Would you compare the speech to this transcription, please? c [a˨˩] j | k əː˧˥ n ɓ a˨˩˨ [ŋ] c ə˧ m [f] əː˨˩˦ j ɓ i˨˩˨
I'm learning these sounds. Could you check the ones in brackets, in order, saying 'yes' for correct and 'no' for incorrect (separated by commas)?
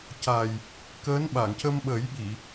yes, yes, no